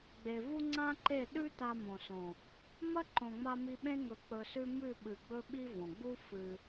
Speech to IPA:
ɡ͡b e˨ v u˦ ŋ͡ǀ ã˦ ǃ e˦˨ ɗ ʉ˦ t a˧ m õ˨ s õ˨ | m ɐ˦ ǃ õ˨ ŋ͡m a˧ m i˧ ɓ ẽ˦ ŋ ɵ˧ k͡p ɵ˧ s ʉ˦ m ʉ˦˨ ɓ ɨ˨ ɡ͡b ɵ˦ ɓ i˦ v õ˨ ɡ͡b u˦ f ɨ˧

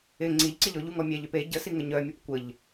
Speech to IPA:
ɪ ŋ͡ǀ i ʎ ǀ ɪ ʎ ɔ ʎ u ŋ ɔ mʲ ɛ ʎ ø p e ɟ ə s i ŋ ə ɲ œ mʲ ɔ p kʷ ə ʎ

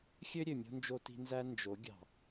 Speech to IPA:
xʲ ø˦ ɾʲ ø˨ mʲ o̤˦ n d͡ʒ o˦ t i̤˦ n z æ˦ n d͡ʒ o˨˦ ɡʲ ɑ̤˨

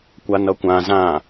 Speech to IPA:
kʷ a n ʌ kʷ ã z ã

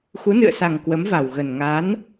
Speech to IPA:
x u˨˦ n ɨ̰˧˨ ə̯ s a˨˩ ŋ k w ə˨˦ m v a˨˩ w ɣ ə˨˩ n ŋ a˨˦ n

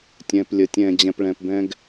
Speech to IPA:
tʲ ɛ̃ː˧ p lʲ ə˨˦ tʲ ɛ̃ː˨ d͡ʑ ɛ̃˨ p ɭ ɛ̃˨ p b ɛ̃˧ ɡ

